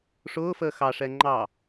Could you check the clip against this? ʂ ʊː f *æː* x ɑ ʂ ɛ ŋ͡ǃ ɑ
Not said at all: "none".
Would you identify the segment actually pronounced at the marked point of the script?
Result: əː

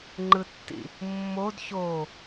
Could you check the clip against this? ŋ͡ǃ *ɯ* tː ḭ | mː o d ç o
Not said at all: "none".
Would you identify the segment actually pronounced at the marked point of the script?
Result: ɯ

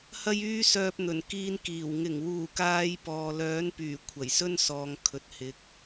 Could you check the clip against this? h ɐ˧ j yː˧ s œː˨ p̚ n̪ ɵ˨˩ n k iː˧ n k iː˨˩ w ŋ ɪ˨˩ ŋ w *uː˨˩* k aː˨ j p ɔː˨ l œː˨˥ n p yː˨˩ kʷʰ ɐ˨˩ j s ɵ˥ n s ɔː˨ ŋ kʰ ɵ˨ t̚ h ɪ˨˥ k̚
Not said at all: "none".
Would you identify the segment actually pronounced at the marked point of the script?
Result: uː˨˩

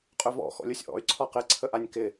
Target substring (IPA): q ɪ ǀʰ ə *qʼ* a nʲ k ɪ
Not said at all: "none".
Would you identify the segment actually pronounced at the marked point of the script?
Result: ʔ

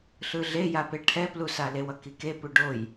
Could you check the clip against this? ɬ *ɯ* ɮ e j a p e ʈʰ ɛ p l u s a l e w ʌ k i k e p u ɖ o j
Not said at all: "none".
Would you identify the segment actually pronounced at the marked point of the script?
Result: ɯ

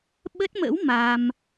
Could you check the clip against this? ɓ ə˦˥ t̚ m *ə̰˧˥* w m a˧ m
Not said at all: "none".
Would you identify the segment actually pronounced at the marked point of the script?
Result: ə̰˧˥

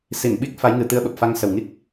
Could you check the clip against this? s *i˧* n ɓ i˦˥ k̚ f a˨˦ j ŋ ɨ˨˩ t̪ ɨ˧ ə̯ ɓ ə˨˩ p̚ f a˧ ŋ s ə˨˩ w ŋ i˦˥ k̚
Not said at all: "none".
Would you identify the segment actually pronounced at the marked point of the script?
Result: i˧˩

